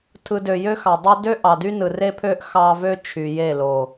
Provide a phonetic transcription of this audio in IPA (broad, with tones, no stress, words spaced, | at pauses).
tʰɯ˨ dø˨jø˦xɑ˨dˤo˦ dø˦ʔɑ˨dy˦ nɯ˨re˦pʰø˦ʔ xɑ˦ vø˦t͡ʃʰy˨ je˦˨ lo˨